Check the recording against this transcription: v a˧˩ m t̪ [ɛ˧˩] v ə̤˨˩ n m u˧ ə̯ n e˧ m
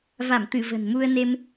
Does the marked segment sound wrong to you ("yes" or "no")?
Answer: yes